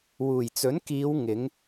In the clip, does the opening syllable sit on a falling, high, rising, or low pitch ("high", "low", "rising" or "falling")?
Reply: low